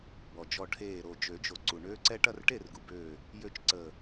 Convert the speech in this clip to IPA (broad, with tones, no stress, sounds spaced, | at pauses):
b ɔ˩ d͡ʒ ɔ˧˩ ʈʰ eː˧˩ ɾ o˧˩ d͡ʒ ø˨˩˦ d͡ʒ o˩ ǀ u˩ ɳ øː˦ ǀ ɛ˦ ʈ ɐ˥˨ r ʈ e˥˨ r ɡ u˩ b øː˧˩ | j ø˥˨ t͡ʃ ǀ əː˧˩